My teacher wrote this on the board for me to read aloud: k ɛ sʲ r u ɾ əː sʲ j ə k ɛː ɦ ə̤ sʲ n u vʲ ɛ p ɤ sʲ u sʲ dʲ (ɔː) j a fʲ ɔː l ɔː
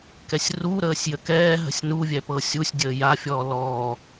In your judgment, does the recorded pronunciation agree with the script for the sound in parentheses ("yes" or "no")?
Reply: no